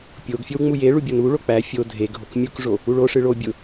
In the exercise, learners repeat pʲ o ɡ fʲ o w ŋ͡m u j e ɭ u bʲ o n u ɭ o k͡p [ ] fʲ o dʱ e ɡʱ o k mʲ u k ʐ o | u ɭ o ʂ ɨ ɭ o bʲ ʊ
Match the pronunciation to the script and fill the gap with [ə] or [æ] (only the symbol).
æ